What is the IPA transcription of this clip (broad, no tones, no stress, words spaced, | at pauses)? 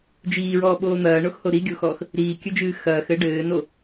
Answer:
d͡ʒiːɹɔːɓoː n̪ɐːɳoxho ɾiɡʲoxɔːx | ɾiːkʲɘd͡ʒɨː xɐːxɘ ɖɘːno